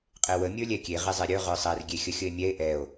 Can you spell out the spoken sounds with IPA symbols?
qʼewə mʲə˞lʲɛkʲe ʁezˤeɾʲə˞ ʁə˞sˤɛr ɡʲexʲəxʲəe̯mʲɛe̯ ʔɛo̯

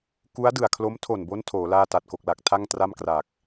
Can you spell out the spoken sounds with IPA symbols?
ku˦˥a̯dɯ˨˩a̯kʰlo˦˥m tʰo˨˩nbo˦˥n tʰoː˩˦laː˥˩ ta˨˩t̚ko˨˩k̚la˨˩k̚ tʰa˥˩ŋtra˥˩mkra˨˩k̚

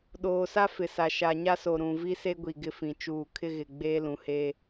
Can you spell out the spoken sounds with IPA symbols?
ɗoː˨sa˦ fɪ˨sa˨ ʃa˨ɲa˦so˨ɾũ˨ vi˦se˦ ɡʷi˨ɡɪ˦fĩ˨ t͡ʃuː˨kʰɪ˦ɣɪ˨ ɡ͡beː˦lũ˨he˦

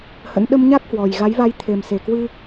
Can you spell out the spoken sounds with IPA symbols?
hə̰˧˥n ɗə˧mɲa˦˥k̚hwɔ˨˩j ɣa˨˦jva˧j t̪ʰe˨˩m se˨˩kwɨ˧

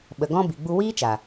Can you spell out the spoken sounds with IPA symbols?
ɓə˨ɡɔ̃˦ bi˨ɡ͡bu˧wiː˦t͡ʃa˨

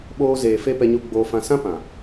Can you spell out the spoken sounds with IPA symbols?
ɓoː˧ zeː˨fe˧ pɛ˧ɲu˧ɡ͡boː˧ fã˧ sã˦ pã˨

